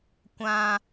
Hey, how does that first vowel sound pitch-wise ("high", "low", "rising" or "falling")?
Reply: high